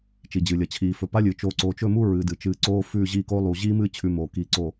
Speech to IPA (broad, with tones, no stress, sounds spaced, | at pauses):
t͡ʃ i˨ d͡ʑ ɨ˨ lʲ ɐ˨ t͡ɕʰ iː˨ f ɵ˨ p a˦ lʲ ɨ˨ t͡ʃ oː˨ ǀ oː˨ t͡ʃ ɵ˦˨ m u˦ ɹ ɨ˨ d ɨ˨ t͡ʃ ɨː˦ ǀ oː˦ f ʉː˦˨ ʑ iː˦˨ k oː˦ lˠ u˨ ʑ iː˦ m ɨ˦˨ t͡ɕʰ ʉ˦ m oː˨ k iː˨ ǀ o˨